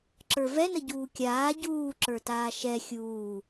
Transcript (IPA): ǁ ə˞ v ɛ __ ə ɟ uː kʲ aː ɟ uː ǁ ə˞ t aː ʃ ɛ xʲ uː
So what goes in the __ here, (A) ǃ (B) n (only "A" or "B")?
B